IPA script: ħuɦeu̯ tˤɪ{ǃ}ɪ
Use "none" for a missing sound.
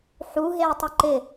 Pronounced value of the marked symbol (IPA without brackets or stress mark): ǃ